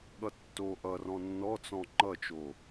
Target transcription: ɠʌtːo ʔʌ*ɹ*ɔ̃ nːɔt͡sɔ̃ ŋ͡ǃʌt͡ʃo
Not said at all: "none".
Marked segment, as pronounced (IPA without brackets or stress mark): r